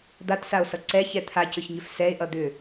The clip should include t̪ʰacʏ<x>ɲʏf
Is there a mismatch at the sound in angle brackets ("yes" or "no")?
yes